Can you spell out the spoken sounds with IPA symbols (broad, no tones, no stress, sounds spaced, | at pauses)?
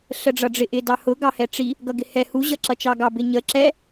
ɬ ə ɖ͡ʐ ʌ ɖ͡ʐ ɪ ʔ ɪ d ɑ h ʊ ɡ ɑ h ɛ ʈ͡ʂ i | ɡ ʌ ɡ ɪ h ɛ h u ʑ ʌ ǁ ʌ t͡ʃ ɑ ɡ ɑ b ɪ ɲ ə ǁ ɛ